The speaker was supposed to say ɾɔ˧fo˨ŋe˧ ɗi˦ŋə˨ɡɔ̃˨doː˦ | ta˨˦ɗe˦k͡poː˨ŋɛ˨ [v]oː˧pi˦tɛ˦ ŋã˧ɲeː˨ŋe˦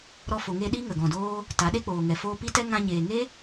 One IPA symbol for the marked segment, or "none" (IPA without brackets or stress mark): f